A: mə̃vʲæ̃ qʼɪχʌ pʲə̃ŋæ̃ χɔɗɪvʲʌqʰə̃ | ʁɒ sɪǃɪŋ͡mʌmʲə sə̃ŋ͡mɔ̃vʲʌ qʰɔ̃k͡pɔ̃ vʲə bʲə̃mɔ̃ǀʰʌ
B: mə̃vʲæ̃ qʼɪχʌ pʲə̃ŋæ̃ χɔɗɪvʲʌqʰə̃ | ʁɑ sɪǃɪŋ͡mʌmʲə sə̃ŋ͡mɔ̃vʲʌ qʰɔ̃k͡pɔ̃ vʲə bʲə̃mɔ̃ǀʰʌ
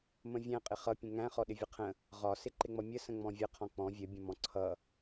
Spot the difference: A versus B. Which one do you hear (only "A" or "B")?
A